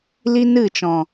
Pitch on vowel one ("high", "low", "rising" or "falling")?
high